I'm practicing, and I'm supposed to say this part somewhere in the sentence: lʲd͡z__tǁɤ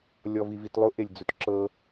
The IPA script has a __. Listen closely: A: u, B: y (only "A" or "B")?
A